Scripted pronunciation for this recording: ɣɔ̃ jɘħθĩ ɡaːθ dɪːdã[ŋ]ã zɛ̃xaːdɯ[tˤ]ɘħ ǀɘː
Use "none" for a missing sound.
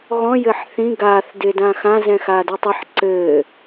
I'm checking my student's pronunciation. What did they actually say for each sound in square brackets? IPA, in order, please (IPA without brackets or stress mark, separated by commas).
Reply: x, tˤ